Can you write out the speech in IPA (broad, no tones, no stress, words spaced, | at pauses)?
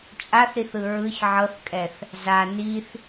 t͡ʃʼaθɾiθɯ ɹɯç ʕɤθkʼɛθ | za niθ